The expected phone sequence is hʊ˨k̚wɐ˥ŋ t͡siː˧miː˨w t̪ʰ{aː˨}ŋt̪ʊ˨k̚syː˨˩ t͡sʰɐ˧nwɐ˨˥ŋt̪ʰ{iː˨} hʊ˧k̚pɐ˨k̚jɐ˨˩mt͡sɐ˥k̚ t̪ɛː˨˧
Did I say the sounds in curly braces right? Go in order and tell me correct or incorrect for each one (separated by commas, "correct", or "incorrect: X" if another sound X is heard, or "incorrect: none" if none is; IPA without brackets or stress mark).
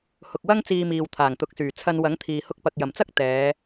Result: incorrect: aː˨˩, correct